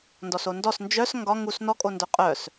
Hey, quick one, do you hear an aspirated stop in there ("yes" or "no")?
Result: no